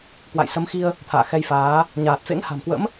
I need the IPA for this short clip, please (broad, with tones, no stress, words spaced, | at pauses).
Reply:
kwa̰˧˨jsə˨˦mxi˧ə̯ | t̪ʰa̰ː˧˨xɛ˧jfaː˨˦ | ɲaː˨˩t̚fḛ˧˥ŋha̤˨˩mkwə̰˧˥m